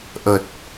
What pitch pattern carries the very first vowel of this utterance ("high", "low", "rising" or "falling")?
low